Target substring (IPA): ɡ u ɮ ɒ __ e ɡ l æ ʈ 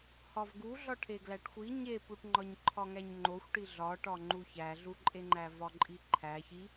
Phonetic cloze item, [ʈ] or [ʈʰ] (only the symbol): ʈʰ